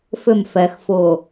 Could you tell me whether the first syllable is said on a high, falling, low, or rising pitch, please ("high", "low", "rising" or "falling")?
falling